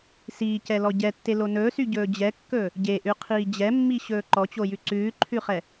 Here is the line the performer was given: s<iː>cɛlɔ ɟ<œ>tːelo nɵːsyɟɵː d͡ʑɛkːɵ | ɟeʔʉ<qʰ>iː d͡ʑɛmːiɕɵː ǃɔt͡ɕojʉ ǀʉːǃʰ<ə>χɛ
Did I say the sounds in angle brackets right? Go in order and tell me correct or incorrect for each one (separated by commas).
correct, incorrect, correct, incorrect